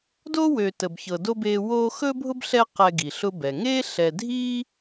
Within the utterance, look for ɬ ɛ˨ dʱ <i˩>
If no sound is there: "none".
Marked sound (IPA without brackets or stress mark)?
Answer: i˥